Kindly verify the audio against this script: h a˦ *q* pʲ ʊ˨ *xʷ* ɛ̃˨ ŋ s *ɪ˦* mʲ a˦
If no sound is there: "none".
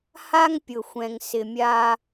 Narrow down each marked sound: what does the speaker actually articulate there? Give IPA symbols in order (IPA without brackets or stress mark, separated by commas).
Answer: ŋ, xʷ, ɪ˨